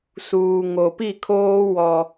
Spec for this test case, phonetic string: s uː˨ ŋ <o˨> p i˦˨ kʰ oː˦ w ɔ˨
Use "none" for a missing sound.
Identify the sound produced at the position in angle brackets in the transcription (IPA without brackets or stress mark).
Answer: o˨